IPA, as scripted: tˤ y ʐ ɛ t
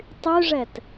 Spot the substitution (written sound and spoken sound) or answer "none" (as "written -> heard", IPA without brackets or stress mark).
none